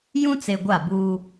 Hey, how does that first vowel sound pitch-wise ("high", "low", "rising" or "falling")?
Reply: high